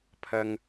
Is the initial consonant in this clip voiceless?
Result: yes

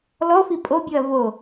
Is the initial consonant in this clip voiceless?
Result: no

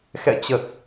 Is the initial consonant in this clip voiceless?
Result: yes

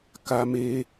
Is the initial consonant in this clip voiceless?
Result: yes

